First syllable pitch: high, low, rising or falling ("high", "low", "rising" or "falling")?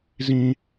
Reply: high